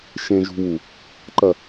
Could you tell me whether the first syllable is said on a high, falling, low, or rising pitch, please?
low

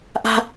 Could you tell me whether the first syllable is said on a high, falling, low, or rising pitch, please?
high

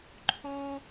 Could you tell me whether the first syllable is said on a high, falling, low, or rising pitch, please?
high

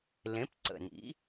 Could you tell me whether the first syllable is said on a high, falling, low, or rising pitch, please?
rising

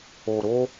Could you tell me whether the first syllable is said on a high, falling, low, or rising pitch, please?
low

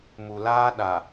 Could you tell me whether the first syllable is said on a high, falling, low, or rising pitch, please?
low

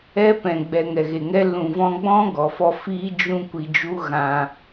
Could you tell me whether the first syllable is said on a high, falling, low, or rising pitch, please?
high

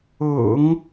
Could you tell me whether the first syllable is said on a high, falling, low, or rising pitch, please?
low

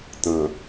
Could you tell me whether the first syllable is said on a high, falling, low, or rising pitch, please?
low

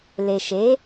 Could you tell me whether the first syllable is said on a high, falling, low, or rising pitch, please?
low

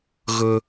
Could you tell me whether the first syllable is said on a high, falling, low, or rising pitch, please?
high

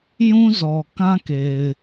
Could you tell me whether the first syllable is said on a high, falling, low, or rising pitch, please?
high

